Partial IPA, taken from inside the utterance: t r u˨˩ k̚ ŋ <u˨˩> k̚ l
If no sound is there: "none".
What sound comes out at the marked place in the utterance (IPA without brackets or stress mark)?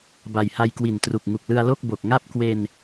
u˨˩